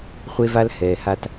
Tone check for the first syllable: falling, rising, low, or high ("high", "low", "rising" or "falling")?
high